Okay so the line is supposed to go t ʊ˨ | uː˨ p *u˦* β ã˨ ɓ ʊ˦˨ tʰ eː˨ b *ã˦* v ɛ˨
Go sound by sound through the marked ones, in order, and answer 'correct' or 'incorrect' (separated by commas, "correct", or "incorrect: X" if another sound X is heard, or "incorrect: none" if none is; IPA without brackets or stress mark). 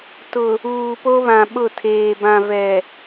incorrect: o˦, incorrect: ã˨